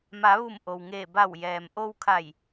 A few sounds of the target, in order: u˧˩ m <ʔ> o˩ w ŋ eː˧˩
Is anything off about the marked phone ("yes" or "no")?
no